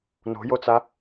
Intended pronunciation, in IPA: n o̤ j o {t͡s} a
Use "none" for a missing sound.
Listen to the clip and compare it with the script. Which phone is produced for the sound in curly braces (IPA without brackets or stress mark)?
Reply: t͡s